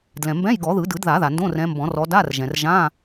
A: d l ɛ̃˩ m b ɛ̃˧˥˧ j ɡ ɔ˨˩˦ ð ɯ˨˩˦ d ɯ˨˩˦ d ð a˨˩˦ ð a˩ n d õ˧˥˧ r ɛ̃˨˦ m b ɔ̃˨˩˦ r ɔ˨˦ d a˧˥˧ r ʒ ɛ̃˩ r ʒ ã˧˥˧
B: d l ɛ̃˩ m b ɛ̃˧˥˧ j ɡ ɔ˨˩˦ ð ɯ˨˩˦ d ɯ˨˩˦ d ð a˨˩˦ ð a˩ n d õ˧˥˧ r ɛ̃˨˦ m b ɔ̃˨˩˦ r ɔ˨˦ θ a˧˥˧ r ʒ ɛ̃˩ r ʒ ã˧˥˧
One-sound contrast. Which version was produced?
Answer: A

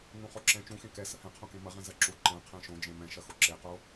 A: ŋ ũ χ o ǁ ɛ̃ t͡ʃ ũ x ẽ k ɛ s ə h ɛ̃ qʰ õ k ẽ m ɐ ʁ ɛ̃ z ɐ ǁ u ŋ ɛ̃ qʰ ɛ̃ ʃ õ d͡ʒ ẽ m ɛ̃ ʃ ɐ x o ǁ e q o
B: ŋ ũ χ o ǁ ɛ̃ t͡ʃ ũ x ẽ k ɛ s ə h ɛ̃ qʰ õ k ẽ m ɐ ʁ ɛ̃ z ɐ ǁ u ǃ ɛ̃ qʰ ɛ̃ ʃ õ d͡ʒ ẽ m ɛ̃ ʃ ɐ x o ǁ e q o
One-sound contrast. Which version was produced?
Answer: B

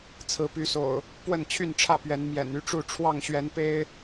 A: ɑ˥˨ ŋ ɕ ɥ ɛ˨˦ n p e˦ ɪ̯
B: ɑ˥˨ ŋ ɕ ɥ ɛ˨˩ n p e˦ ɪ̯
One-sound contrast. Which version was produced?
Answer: A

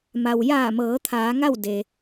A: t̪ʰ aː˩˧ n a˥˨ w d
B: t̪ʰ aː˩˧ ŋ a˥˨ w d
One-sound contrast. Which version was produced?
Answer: B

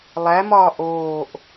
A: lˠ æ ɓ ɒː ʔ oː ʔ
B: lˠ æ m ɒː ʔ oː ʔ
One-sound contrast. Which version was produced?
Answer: B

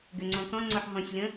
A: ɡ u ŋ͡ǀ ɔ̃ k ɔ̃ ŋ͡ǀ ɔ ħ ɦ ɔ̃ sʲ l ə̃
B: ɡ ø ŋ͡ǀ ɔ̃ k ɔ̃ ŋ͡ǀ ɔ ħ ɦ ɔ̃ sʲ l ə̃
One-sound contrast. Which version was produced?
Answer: B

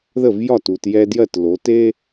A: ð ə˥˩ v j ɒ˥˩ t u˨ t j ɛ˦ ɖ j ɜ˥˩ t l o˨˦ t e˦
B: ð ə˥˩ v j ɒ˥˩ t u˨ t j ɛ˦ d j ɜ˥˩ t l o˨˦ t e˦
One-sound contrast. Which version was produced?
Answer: B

